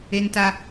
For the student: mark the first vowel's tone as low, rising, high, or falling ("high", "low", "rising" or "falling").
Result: high